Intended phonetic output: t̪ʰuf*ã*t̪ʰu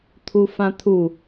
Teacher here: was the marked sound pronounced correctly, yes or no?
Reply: yes